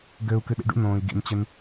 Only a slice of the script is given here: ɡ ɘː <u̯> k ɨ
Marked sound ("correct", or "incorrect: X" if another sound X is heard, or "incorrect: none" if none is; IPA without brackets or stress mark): correct